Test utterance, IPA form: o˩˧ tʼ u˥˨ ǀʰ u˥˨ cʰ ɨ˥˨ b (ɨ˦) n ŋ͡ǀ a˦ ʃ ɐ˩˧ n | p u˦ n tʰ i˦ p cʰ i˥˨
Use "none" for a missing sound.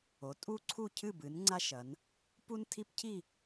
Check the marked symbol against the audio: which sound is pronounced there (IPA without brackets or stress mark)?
ɨ˩˧